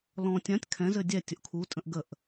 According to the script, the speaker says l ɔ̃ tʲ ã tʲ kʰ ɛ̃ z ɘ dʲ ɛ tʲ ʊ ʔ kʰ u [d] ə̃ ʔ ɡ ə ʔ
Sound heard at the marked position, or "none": tʼ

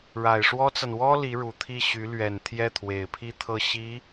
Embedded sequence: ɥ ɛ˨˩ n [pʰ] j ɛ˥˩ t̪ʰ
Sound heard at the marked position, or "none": t̪ʰ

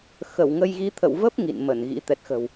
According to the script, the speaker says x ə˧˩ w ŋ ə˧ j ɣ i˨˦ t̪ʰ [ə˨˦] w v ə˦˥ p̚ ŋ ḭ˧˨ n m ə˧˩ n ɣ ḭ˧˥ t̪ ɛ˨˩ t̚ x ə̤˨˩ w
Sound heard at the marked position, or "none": ə̰˧˨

